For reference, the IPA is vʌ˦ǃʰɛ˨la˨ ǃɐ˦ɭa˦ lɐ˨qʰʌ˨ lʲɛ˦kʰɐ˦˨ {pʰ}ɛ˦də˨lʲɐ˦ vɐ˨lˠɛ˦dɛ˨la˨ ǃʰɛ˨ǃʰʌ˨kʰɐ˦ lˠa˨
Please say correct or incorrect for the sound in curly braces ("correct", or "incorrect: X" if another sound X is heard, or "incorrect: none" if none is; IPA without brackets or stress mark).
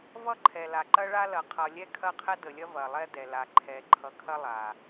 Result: incorrect: qʰ